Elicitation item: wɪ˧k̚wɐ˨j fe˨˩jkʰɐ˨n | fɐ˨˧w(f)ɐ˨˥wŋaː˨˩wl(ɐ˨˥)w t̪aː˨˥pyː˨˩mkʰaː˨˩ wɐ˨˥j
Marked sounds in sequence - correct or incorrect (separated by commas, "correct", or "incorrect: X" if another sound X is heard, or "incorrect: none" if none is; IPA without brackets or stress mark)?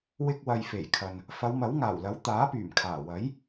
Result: incorrect: m, correct